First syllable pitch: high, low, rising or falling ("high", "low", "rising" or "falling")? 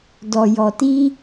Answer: low